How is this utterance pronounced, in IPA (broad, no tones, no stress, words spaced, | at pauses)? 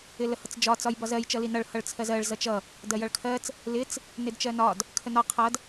ɪləhʌt͡sd͡ʒɒ t͡sɒjbɒzɜj t͡ʃʌlinʌɭ hʌɭt͡sʰɜzɜɭ zʌt͡ʃʌ | dɜjʌɭkʰɜt͡s | lɪt͡s | nɪdt͡ʃɜnɒd | kʰənɒ qʰʌd